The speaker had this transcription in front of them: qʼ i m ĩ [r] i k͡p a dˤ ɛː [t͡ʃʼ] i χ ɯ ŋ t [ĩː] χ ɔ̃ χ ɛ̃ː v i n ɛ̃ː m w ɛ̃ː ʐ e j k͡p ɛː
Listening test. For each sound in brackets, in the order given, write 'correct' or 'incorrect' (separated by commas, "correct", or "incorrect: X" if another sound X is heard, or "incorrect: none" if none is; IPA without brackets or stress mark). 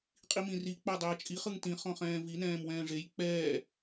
correct, correct, incorrect: ĩ